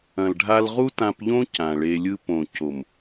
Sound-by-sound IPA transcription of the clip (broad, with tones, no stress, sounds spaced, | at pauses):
ɐ̃˨ l ɖʱ a˧ l ʁ u˦ t ã˧ p ʎ õ˦ c ã˨ ɭ e˧ lʲ ɯ˦ p õ˨ c o˨ m